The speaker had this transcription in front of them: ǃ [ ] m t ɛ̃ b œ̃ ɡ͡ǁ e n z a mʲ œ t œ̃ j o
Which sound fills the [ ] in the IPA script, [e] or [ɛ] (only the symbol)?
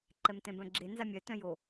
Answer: ɛ